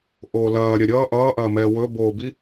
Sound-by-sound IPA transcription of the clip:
ʔ oː l ɐː ɾʲ ɐ ɾʲ ʌː ʔ ʌː ʔ ɐː m ɛː w ɵ b oː b i

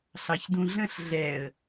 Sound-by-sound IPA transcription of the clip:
ɬ ɑ ç d ũ ɮ ə̃ ɬ ɮ ɛ ə̯

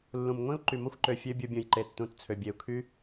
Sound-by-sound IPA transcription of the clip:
lː ũ˨ m ŋʷ ĩ˦ u̯ ǃ y˨ m o˦ xʷ ǃ ø˨ fʲ ø˦ bʲ u˧ bʲ ũ˨ j ǃ e˨ tː ũ˨ t t͡sʰ ø˨ bʲ e˨ u̯ kʰ y˦

